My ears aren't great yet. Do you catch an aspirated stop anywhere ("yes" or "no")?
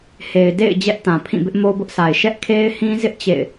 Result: yes